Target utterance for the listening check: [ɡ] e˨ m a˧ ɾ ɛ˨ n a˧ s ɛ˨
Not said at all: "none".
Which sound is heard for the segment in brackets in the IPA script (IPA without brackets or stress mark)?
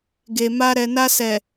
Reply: ɡ